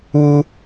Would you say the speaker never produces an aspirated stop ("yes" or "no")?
yes